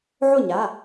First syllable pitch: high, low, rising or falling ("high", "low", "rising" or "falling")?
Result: falling